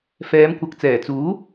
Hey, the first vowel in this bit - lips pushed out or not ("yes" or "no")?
no